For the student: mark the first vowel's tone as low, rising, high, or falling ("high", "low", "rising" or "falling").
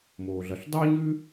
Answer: low